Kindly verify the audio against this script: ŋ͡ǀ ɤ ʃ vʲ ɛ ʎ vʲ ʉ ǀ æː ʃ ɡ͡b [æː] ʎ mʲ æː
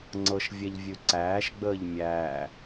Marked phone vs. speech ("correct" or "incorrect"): incorrect